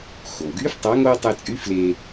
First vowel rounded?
yes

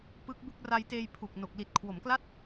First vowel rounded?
no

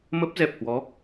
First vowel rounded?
no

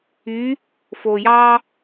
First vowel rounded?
yes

